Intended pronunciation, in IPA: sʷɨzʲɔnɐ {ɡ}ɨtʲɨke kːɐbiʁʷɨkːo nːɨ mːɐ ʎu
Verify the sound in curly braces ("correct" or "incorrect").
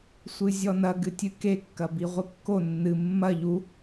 correct